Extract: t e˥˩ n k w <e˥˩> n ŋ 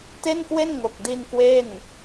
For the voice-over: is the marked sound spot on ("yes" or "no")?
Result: yes